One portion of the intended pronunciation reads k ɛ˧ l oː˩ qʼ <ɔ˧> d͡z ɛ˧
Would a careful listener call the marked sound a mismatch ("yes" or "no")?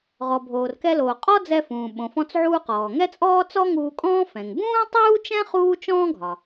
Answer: yes